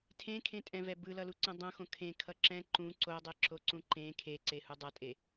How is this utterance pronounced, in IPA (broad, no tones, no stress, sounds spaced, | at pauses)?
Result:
tʰ ẽ kʰ ẽ tʼ ɛ̃ v ɛ b ɯ l ʌ l u ǀ ɛ̃ dˤ õ x õ kʰ ẽ kʰ ʌ ǁ ɛ̃ ǃ ũ ǀ o dˤ ɛ ǁ o ǀ ũ ǃ ẽ kʰ e ǀ e h u dˤ ʌ tʼ e